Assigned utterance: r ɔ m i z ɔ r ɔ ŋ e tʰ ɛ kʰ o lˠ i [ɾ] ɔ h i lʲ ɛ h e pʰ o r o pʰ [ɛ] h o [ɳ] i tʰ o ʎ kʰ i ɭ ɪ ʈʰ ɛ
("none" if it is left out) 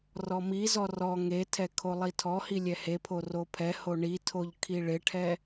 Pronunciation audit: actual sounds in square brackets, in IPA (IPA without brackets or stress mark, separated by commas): tʰ, ɛ, ɳ